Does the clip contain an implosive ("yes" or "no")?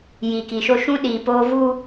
yes